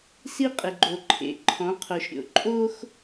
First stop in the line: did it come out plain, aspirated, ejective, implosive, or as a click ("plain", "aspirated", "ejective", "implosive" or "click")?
ejective